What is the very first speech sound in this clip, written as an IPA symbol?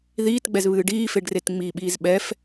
ð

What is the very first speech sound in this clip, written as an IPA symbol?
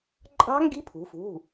ǃʼ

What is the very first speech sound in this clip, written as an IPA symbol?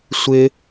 sʷ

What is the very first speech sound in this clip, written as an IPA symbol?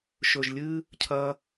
ʃ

